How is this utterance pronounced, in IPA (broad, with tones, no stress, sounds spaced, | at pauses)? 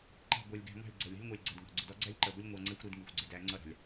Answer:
ǃ ɛ̤˦˨ ɡʷ æ˧ lʲ ɡ æ̤˧ ŋ ɑ̤˦˨ lʲ ɡ͡ǀ ɜ˨ lʲ ɑ̤˦ lʲ ŋʷ ɑ˧ lʲ ɡ͡ǀ ɜ˨ d ŋ ɑ̤˨ ɡ͡ǀ ə˧ d ɒ˦ ɡ͡ǀ æ˦ lʲ ǃ ɜ˨ ɡʷ ə˦ lʲ ŋʷ ɑ˧ ŋ͡ǀ ɛ˦ xʷ ɾ i˧ d ŋ i˨ xʷ ɡ͡ǀ ɪ˧ d æ˨˦ ŋ͡ǀ ʌ˦ ɾ ɑ̤˨ lʲ